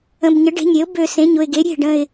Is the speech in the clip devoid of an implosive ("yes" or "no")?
yes